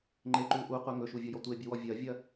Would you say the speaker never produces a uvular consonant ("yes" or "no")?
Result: no